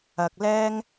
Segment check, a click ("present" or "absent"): absent